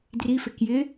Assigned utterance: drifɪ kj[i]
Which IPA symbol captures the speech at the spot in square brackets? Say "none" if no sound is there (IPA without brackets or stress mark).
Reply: ɪ